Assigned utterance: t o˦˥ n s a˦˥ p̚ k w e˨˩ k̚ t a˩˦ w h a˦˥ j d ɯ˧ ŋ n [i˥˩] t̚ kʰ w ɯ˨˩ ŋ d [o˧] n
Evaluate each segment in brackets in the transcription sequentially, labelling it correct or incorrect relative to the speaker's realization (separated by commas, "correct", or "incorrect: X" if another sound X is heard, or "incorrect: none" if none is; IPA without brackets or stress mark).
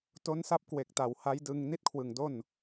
correct, incorrect: o˥˩